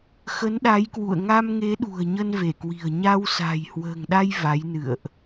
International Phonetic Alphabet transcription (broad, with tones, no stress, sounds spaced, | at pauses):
x ə˨˦ n ɗ a˨˦ j k w ṵ˧˨ ə̯ ŋ a˧ m ŋ e˨˦ ɗ ṳ˨˩ ə̯ ɲ ə˧ n v e˧˩ k w i̤˨˩ ə̯ ɲ a˧ w s a̤˨˩ j h w ə̤ː˨˩ ŋ ɗ a˧ j v a˨˦ j n ɨ̰˧˨ ə̯ ʔ